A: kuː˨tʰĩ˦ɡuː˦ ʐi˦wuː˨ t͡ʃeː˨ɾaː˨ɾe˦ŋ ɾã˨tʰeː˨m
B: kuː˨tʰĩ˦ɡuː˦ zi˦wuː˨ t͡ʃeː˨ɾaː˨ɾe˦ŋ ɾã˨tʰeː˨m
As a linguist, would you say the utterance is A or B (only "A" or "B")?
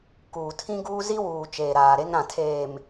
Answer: B